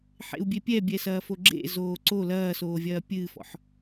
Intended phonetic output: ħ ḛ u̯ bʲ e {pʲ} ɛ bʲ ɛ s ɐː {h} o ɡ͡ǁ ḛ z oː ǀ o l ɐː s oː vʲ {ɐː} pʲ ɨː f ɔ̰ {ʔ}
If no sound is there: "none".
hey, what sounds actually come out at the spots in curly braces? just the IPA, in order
pʲ, f, ɐː, ħ

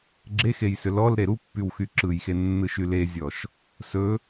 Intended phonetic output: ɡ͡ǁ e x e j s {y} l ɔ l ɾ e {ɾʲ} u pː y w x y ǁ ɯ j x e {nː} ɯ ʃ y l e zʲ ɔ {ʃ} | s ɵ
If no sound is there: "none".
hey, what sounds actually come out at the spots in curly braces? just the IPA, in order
ʏ, ɾ, nː, ʃ

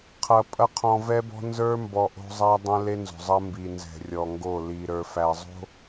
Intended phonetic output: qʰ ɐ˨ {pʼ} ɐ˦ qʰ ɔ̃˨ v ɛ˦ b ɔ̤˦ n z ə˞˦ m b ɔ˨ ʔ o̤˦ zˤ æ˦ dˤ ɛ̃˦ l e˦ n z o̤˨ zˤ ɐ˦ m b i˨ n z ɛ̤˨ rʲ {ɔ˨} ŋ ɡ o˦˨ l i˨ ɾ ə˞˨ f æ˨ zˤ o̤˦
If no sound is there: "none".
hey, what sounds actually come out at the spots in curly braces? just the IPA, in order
pʼ, ɔ˨

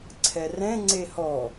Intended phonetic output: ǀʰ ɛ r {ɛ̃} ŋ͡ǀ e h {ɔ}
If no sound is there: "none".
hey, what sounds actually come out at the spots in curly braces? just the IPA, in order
ɛ̃, ɔ

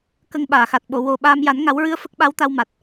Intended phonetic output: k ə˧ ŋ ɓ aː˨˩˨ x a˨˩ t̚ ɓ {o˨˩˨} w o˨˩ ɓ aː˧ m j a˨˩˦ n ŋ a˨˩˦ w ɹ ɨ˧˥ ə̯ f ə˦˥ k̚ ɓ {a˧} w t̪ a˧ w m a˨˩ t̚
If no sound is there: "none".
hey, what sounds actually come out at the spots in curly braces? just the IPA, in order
o˨˩˨, a˧˥

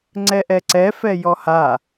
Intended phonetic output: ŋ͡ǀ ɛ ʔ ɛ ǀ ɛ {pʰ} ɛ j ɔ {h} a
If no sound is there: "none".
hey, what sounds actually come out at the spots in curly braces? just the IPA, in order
f, h

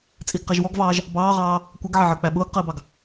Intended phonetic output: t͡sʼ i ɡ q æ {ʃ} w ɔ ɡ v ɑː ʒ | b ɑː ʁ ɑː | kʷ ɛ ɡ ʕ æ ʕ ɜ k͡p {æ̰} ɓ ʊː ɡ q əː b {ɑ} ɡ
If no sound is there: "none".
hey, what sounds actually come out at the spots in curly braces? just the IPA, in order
ʒ, æ, ɑ

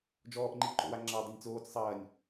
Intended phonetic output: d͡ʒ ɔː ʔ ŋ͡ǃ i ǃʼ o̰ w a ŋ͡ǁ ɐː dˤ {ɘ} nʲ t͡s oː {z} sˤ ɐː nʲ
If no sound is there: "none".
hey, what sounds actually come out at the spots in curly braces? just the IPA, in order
ɘ, t͡s

